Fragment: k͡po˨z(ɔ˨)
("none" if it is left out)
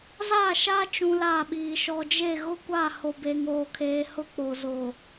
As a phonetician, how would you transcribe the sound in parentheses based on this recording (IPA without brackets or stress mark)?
o˨